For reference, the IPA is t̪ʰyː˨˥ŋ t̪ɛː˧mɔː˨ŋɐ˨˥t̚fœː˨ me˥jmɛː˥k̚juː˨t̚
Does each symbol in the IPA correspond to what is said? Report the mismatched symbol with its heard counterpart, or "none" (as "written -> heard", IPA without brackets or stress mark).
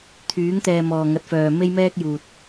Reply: none